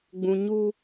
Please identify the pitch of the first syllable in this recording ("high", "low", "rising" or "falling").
high